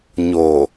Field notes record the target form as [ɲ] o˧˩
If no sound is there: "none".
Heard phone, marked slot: ɲ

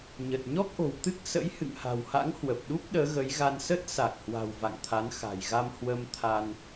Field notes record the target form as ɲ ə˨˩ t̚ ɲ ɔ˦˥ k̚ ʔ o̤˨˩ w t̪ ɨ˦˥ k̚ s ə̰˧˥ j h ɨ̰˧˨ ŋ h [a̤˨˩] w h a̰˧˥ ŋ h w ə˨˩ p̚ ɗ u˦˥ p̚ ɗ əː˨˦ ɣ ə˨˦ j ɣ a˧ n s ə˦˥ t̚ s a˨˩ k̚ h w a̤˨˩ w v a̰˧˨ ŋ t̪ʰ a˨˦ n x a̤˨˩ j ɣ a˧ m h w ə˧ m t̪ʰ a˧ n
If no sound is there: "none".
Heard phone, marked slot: a̤˨˩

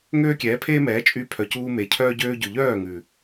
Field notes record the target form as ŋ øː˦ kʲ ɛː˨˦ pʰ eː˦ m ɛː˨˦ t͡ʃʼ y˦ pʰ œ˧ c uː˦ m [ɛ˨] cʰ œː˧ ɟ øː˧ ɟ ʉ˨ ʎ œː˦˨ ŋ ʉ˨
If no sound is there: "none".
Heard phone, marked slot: e˨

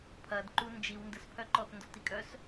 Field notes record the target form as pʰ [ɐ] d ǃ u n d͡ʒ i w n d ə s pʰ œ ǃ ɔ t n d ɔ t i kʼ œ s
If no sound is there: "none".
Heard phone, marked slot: ɐ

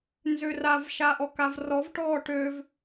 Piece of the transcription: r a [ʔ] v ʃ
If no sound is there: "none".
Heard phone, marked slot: none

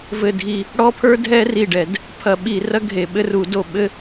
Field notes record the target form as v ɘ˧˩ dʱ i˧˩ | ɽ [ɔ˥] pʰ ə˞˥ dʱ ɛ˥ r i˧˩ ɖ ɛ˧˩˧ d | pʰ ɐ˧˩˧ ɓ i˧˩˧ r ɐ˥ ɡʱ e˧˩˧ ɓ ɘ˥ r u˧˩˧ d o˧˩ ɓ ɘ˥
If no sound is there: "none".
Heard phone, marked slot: ɔ˥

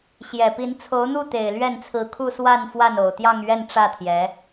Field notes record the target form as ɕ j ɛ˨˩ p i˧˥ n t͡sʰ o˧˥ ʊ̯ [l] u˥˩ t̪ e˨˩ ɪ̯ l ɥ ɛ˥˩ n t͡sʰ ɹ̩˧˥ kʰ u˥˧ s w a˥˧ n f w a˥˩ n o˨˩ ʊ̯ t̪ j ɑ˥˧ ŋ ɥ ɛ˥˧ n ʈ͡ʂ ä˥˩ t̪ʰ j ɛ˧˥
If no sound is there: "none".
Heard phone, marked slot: n̪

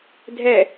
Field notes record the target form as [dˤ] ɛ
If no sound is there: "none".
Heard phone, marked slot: dʱ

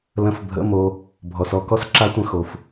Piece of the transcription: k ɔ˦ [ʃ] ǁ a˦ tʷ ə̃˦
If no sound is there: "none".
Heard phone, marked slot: s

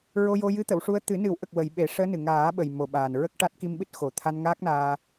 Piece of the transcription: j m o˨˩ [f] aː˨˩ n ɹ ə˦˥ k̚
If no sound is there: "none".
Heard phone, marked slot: ɓ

